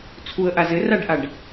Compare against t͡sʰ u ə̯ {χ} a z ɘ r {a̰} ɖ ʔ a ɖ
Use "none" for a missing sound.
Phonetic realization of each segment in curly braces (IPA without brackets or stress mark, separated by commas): ʔ, a